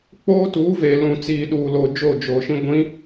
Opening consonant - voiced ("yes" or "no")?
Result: no